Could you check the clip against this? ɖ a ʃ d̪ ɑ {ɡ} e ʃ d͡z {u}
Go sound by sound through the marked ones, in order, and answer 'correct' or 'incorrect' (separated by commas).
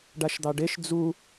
incorrect, correct